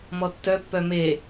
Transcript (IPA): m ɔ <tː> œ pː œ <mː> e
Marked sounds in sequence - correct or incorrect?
correct, incorrect: m

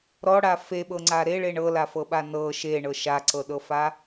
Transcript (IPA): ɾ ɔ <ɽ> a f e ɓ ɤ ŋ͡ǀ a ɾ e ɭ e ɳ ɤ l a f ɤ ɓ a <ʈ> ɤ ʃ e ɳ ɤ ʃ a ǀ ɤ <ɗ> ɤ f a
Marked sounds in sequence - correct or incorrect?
correct, incorrect: n, correct

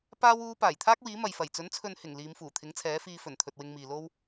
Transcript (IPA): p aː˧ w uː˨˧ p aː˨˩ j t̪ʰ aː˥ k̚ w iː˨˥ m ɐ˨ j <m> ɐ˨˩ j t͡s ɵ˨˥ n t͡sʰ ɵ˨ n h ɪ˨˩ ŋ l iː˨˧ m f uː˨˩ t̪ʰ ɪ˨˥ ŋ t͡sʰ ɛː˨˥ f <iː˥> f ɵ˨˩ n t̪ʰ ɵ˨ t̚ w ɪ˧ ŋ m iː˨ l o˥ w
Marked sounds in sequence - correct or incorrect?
incorrect: f, incorrect: iː˧

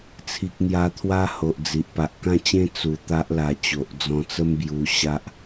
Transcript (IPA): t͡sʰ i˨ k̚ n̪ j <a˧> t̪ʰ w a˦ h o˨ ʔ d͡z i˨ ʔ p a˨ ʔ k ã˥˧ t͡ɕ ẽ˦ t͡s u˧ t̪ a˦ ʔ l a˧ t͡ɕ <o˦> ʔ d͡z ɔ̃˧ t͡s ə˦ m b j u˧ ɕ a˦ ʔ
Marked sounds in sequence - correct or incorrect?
correct, incorrect: o˨

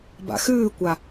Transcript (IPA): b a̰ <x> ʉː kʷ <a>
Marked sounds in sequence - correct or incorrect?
correct, correct

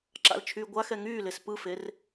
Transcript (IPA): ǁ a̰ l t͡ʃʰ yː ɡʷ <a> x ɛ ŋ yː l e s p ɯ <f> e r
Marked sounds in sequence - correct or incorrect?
correct, correct

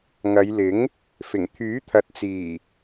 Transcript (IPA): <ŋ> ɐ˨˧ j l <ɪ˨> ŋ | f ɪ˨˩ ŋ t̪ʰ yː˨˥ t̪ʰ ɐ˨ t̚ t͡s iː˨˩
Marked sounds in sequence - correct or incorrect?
correct, incorrect: ɪ˨˥

